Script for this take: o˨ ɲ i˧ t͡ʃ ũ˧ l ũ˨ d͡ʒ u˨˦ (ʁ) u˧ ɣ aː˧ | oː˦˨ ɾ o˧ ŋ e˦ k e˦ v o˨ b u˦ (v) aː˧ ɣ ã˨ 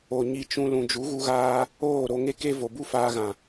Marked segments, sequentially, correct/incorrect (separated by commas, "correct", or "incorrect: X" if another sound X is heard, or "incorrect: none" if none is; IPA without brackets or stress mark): incorrect: ɣ, incorrect: f